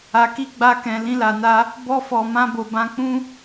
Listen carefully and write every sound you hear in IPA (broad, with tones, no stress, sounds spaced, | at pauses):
a˨ k i˧ ɡ͡b a˧ k ɛ̃˨ l ĩ˧ l a˨ n a˧ | b ɔ˧ f ɔ˨ m ã˧ b o˨ b ã˧ k͡p ũ˦